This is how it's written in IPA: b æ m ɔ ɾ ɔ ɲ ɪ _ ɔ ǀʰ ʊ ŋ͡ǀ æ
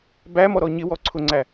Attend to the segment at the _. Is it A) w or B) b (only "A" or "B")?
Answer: A